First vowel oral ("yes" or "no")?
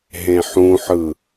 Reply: no